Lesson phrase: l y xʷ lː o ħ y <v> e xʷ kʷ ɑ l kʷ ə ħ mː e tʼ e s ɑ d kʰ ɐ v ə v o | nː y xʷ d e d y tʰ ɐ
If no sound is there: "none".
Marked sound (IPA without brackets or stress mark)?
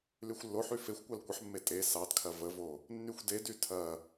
f